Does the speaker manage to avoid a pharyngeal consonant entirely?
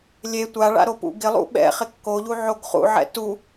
no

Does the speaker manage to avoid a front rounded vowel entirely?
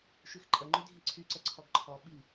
no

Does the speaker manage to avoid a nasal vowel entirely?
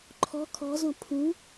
no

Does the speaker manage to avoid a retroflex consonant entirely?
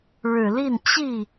no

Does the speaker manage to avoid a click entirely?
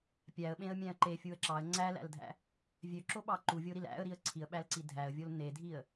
no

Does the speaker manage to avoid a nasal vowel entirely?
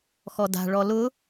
yes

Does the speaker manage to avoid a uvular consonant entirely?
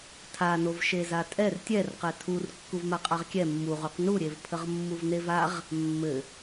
no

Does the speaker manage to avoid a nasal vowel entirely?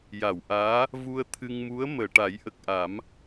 yes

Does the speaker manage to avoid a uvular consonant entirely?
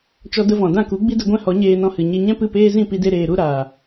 yes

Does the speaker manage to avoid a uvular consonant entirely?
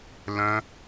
yes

